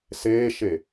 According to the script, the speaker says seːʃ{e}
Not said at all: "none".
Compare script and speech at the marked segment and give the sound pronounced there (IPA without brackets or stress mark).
e